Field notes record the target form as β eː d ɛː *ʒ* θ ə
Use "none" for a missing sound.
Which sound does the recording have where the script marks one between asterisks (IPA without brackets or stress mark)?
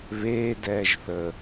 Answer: ʒ